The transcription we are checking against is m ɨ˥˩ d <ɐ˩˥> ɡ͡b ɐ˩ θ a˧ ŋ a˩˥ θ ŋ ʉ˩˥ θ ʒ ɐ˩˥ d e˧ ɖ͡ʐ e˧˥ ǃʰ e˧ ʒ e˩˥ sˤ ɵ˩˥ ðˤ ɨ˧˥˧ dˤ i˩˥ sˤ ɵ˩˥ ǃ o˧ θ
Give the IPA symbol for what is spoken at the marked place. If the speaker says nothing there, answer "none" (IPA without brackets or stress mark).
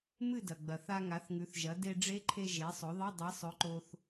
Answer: ɐ˩